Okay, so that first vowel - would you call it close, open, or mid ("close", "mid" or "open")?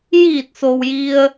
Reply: close